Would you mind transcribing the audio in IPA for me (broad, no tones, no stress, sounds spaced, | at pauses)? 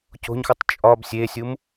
c o̤ ɲ x u tˤ t͡ʃʼ ɒ b sʲ e sʲ u m